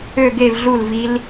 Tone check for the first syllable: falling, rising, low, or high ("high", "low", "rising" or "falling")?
falling